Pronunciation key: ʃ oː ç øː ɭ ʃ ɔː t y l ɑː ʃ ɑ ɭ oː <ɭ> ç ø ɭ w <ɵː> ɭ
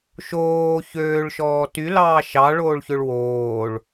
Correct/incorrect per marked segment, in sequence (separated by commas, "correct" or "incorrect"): correct, incorrect